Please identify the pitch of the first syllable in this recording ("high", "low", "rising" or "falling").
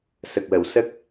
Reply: low